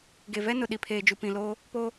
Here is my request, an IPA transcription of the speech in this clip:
ɡ e˨ v ɛ˦ n ʊ˨ ɗ i˨ pʰ eː˨ d͡ʒ u˨ p ĩ˨ l oː˦ | p o˦

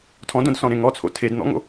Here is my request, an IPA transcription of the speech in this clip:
tʰ ɔ̃ d õ d s ɔ̃ ɾ ẽ ŋ ɔ t͡sʰ o̰ tʰ e d n̪ ɔ̰ ŋ o̰

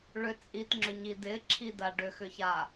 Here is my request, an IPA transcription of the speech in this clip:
ɭ ʏ t͡sʼ i t ŋ͡ǁ ʏ ɲ i d ɪ ǁʰ i d a ɖ ʏ x ʏ ç a

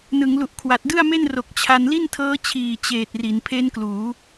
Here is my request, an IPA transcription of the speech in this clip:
n ɯ˩˦ ŋ l u˨˩ ʔ kʰ w a˨˩ t̚ d ɯ˥˩ a̯ m e˥˩ n r o˨˩ k̚ t͡ɕʰ a˧ n l i˥˩ n tʰ ɤː˦˥ t͡ɕʰ iː˨˩ t͡ɕ eː˨˩ t̚ r i˩˦ n pʰ e˦˥ n k l uː˩˦

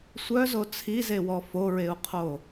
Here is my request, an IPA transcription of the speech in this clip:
sʷ œ z o t͡sʰ i z e w ɔ f o ɹ e u̯ qʰ o

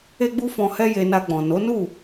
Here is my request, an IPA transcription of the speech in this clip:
e˦ ɡ͡b u˦ f ɔ̃˧ h ɛ˦ j e˧ n a˧ ɡ͡b ɔ̃˨ n o˨˦ n u˦˨

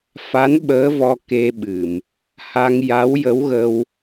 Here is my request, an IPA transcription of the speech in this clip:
f a˧˥ n ɓ əː˧˥ v ɔ˧ k e˧ ɓ ɨ˨˩˨ m | h a˧ ŋ j a˧˥ w j ə˧˥ w ɣ ə˧ w

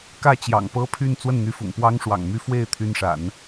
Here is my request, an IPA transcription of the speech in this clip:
k ä˥˩ t͡ɕ j ɑ̰˨˩ ŋ p ɤ˥ pʰ y˥˧ n t͡s w ə˥˩ n n̪ y˧˥ f ʊ̰˨˩ ŋ p w ɑ˥ ŋ ʂ w ɑ̰˨˩ ŋ m y˥˧ f w e˥˩ ɪ̯ t̪ʰ y˥ n ʂ a̰˨˩˦ n

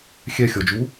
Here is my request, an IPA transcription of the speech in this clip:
xʲ ɛ xʲ ɔ d͡ʒ u

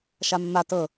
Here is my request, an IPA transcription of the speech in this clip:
ʃ a mː a t ɤ

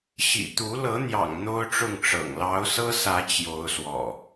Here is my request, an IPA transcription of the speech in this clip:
ɕ ḭ˨˩ t̪ u˨˦ l ɤ˨˦ n̪ j ɑ̰˨˩ ŋ n̪ o˦ ʊ̯ ʈ͡ʂ ʊ˥˨ ŋ ʈ͡ʂ ɤ̰˨˩ ŋ l ɑ˨˦ ʊ̯ s ɤ˦ s ä˨˦ t͡ɕ j o˨˦ ʊ̯ s w ɔ̰˨˩

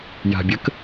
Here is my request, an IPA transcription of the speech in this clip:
j a̤ bʲ ə k

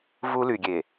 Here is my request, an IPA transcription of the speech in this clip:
v u˦ l y˨ ɡʲ e˨

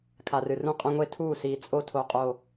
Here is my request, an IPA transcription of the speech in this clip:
kʰ a˨ r ɨ˨ r ũ˦˨ qʼ ɐ̃˦ ŋʷ e˦ tʰ uː˦˨ s iː˨ t͡sʼ o˦ tʰ o˨ qʼ o˨

